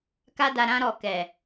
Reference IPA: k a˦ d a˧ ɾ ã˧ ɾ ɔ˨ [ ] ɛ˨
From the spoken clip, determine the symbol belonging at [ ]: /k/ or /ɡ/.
k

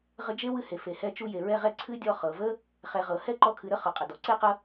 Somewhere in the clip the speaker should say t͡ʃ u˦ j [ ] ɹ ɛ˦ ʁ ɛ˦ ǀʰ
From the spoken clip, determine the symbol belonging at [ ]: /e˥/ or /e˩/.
e˩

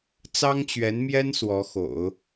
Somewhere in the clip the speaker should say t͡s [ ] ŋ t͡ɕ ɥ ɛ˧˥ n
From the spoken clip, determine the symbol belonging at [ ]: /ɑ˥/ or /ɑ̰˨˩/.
ɑ˥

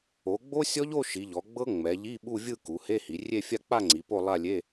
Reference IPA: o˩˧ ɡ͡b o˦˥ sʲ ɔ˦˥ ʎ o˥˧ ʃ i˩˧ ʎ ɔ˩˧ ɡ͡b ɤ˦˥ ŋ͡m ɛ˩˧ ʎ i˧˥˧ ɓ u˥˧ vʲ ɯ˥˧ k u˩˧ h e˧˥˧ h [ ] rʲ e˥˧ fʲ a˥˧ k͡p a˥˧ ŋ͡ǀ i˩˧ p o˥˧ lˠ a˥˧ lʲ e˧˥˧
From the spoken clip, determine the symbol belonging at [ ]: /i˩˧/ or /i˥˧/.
i˩˧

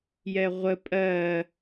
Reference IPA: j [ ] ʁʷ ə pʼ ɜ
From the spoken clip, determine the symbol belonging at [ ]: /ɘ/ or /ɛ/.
ɛ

